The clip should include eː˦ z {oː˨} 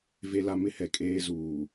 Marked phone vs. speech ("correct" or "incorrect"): incorrect